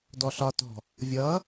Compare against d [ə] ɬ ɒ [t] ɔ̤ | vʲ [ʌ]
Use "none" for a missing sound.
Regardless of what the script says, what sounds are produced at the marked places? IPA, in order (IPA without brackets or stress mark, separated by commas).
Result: ɔ, t, ʌ